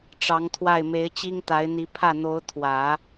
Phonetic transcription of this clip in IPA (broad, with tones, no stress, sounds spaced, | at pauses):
ʈ͡ʂ ɑ˧˥ ŋ t̪ʰ w a˥˩ ɪ̯ m e˧˥ ɪ̯ t͡ɕ i˥ ŋ t̪ a˧˥ ɪ̯ n̪ i˧˥ pʰ ä˥˩ n̪ o˧˥ ʊ̯ t̪ʰ w ä˨˩˦